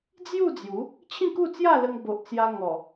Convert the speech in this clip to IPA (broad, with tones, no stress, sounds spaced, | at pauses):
d͡z j u˥˧ d͡z j u˨˦ | t͡ɕʰ ĩ˥˧ k u˥˧ t͡s j a˥˧ l ə˧ ŋ b o˨ ʔ t͡s j a˧ ŋ ɔ˨˩